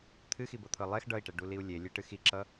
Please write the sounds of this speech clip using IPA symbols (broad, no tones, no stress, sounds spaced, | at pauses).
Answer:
t̪ʰ ɨ x i b ɤ t̪ʰ ɤ lˠ ɛ x ɖ ʌ i̯ ʈ ɛ ɖ u l i u̯ lʲ e lʲ e ʈ ɨ x i ǁ ʌ